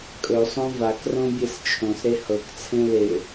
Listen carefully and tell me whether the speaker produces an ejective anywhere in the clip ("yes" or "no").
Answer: yes